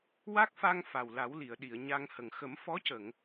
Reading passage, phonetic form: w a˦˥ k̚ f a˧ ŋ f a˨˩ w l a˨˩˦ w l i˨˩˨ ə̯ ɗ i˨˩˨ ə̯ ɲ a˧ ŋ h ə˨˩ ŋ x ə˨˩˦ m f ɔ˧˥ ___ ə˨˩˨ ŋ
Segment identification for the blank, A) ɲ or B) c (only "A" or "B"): B